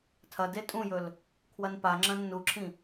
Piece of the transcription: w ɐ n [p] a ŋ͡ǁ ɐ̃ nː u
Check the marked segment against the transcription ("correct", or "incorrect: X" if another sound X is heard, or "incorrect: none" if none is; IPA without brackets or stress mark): correct